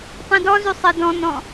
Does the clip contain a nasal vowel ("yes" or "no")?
yes